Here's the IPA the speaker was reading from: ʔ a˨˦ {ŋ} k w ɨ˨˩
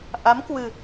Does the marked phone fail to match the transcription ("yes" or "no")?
yes